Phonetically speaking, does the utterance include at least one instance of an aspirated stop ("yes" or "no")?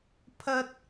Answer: yes